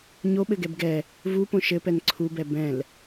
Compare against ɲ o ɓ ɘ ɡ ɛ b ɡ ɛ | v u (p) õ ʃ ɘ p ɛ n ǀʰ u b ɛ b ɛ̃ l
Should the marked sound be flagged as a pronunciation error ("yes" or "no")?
no